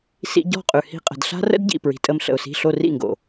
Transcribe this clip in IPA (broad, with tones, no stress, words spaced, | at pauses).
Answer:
sḭ˧ɟɔ̤˦˨qʼʉ˨ hi̤˦qʼə̤˧d ɬa̤˦rə̰˦dɟḭ˨ pɹi̤˨tʼə˧mɬə̰˨ʊ̯si̤˧ ɬo˧rḭ˦˨ŋɡo̰˨